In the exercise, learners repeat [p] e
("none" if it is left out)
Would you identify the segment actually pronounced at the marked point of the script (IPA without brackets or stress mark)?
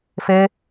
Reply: f